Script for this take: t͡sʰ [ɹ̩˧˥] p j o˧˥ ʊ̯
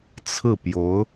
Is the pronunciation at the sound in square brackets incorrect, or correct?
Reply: incorrect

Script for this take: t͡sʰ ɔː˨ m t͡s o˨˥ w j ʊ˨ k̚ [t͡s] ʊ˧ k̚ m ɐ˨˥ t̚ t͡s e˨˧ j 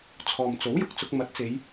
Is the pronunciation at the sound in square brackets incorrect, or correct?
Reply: correct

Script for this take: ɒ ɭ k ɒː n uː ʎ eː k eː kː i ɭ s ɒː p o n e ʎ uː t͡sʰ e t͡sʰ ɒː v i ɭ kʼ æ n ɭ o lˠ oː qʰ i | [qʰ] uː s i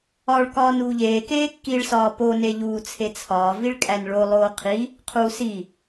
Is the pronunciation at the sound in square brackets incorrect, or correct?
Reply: correct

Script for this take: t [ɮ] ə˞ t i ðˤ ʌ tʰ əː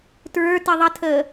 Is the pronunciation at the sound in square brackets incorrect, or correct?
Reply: incorrect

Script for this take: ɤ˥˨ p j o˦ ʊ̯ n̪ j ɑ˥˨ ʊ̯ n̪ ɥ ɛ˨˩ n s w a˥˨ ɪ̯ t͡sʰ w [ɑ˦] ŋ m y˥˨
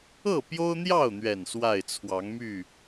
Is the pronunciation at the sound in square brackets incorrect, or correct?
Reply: incorrect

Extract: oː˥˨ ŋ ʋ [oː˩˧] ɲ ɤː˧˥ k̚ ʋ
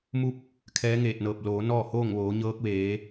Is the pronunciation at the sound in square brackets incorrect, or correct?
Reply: correct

